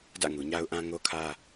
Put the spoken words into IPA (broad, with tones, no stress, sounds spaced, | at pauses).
d ä̰˦˨ ŋ u˨ ɲ a˦ ʊ̯ ʔ ã˦ ŋ o˦ kʰ ä˦